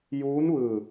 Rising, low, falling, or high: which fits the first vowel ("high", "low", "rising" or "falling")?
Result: rising